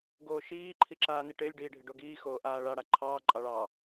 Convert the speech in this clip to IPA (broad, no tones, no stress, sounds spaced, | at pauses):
ɡ oː ʃ iː ǃʰ i ǁ aː n i ʈ ɪː lʲ ɖ iː ɖʱ ɪ ɖ o ɡ iː x oː ʔ aː ɭ a ɽ a ǃʰ ɑː ǃʼ ɑ ɭ ɑ